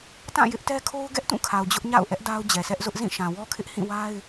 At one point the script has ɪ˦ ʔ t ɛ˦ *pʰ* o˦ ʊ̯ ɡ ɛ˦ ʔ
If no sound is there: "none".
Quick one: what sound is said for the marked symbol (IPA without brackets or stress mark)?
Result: kʰ